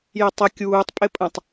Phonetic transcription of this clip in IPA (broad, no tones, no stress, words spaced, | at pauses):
jɘtˤə kʲuːtˤ pʼɪpʼə̃tˤ